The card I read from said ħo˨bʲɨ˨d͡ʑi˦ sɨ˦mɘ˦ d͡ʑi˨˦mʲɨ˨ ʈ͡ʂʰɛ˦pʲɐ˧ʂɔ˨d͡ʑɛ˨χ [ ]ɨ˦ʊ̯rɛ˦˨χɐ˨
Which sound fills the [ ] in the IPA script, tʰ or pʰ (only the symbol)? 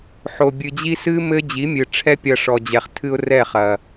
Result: tʰ